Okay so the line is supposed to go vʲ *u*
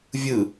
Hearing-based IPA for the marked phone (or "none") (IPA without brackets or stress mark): ɯ